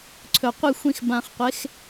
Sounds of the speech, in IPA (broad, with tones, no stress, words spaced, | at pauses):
ǀʰɵ˨qʷɨ˦˨xʷĩ˧x bã˨χqʷe˨˦x